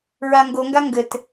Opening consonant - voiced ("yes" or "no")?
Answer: yes